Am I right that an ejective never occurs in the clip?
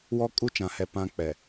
no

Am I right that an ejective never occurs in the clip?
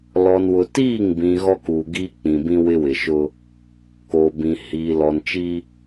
yes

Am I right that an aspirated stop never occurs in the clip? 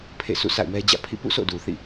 no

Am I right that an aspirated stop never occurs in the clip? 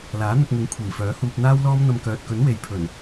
no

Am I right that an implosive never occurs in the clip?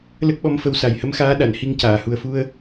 no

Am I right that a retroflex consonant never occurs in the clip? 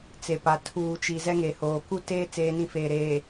yes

